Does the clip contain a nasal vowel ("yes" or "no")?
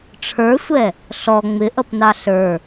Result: no